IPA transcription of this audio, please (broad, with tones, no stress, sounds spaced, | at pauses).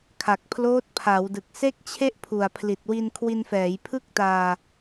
kʰ a˨˩ k̚ pʰ l oː˦˥ t̚ pʰ a˩˦ w d ɯ˨˩ k̚ s e˥˩ k̚ t͡ɕʰ e˥˩ ʔ pʰ u˨˩ a̯ pʰ l i˨˩ t̚ w i˧ n kʰ w i˧ n f ɛː˩˦ j pʰ ɯ˥˩ k̚ t aː˧